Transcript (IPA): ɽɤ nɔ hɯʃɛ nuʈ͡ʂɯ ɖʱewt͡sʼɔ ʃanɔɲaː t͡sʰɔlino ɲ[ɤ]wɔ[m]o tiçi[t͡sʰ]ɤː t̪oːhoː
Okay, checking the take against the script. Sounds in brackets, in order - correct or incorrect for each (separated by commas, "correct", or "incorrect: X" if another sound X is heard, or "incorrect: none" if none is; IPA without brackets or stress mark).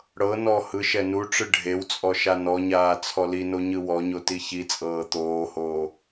incorrect: ɯ, incorrect: ɲ, incorrect: t͡sʼ